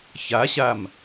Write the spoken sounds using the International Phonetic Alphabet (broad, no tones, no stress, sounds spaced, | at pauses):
ç a ɕ a m